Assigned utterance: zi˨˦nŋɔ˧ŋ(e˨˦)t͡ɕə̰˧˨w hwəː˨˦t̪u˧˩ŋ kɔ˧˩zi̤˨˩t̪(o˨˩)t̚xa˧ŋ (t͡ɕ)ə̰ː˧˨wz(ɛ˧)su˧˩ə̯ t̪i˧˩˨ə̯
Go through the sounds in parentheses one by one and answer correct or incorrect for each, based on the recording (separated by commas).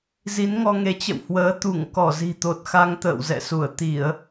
correct, correct, incorrect, incorrect